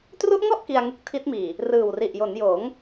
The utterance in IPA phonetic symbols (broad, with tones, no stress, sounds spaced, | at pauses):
t r u˦˥ ʔ ŋ ɔ˥˩ ʔ k i˧ a̯ ŋ ɯ˦˥ k̚ tʰ i˦˥ t̚ m iː˨˩ | r ɯː˨˩ w r i˨˩ ʔ j o˩˦ n j oː˩˦ ŋ